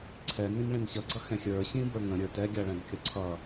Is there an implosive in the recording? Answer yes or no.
no